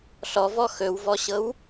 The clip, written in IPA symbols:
ɬɔvɔ xɵwvɔɕɤw

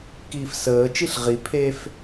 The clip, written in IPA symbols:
kiːfsəːt͡ʃiɬ ʁi pʰef

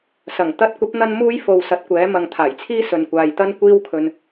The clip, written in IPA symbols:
sɐ˨˩ŋ t̪ɐ˧t̚kʷɐ˨˥p̚ n̪ɐ˥nmuː˥j fo˨w sɐ˨˥t̚kʷɛː˨˥ mɐ˨ŋt̪ʰaː˨˩jt͡sʰiː˥sɵ˨n kʷaː˨jt̪ɐ˥n kʷiː˥wkʰɵ˧n

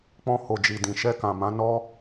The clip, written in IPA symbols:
k͡pɔ̃˧ho˨d͡ʒi˨ dĩ˨ʃɛ˧kã˨mã˨˦ nɔ˦

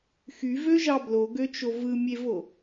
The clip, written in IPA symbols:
xyvøʒɑ bloɡøt͡ʃo vɯmʲevo

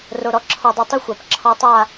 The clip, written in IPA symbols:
ro˨ɾɔ˧ ǁʰɔ˨dˤœ˨ tˤu˦xʷa˨p ǁʰɔ˧tˤa˦˨

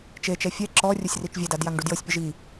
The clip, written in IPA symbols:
t͡ʃet͡ʃɛ fʲɛ ǁɔ rʲosʲrit͡ʃvʲɛdad jaŋɖudjɤsʲpʲɤʒ i

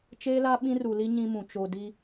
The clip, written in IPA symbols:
t͡ʃeː˦la˦ ɓĩ˦ru˨li˦ ɲĩ˦mũ˨ t͡ʃo˨ di˦

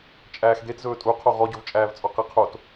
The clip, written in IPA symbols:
t͡ʃʼæːxd̪etzɵː tʼuqʰo ʁɔɟɵvt͡ʃʼæːvt͡sʼɔ qɛqʰot

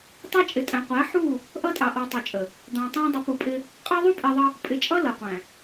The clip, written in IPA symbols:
tˤɛ˦t͡ʃʼɪ˨tʼæ̃˨ qʷæ˨˦ħu˦˨ | ʔʌ˦tʼɑ˨ʔɔ˨ tˤu˨t͡ʃʼə˨ | d̪ɑ̃˨tˤæ̃˦ dˤʊ˨˦pu˨pʼɪ˦ | qʼɑ˦ðˤu˦pʼi˨ðˤə˦ | pʼɪ˨t͡ʃʼʌ˦ lʌ˨qʷæ̃˨

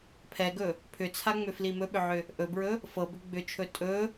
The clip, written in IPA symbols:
pʰɛɡɵ | pʰʏt͡sʰaŋ͡mʏfli mɵɓʏʕʏ | ʔɵbɹɵ | fɤbʏ ɡ͡bʏt͡ʃʰɵ tʼɵ

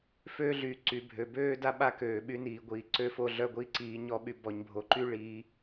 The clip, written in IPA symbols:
føː˦ɮyː˨ ǀy˨bʱø˨ bøː˦da˦ ɓa˦køː˨ɓy˦niː˨ ɡʷiː˨ ǀø˦fo˦ɮœ˦ ɡʷiː˦ǀiː˨˦ɲ ɔ˦ɓy˦ bɔ˨ɲbʱo˨ǃy˦ ɭi˨˦

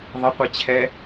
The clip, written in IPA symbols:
ðˤʌqʷi t͡ɕʰɛ

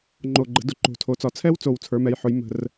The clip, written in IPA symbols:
ŋ͡ǃo˨˩ɡ͡ǃə̤˩˧ dʊ˩˧ǃo̤˨˩ tʰo˩˧t͡sɒ˩˧ t͡sʰɛ˦˥wt͡so˨˩w t͡sʰə˞˩˧mɛ˩˧jħʊ˩˧j mə̤˨˩r

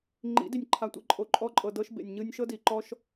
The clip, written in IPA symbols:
ŋ͡ǃḭ˨˦di˨nʲ ǃʰa˧tʷḭ˧ ǃʼo˨ǃʼɔ˧ǃʼɤ˨dɤ˧ʃ bḛ˨nʲɲɯ˧nʲʃɤ˦di˨ ǃɔ˦ʃ

